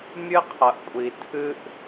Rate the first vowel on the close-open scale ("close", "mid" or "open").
close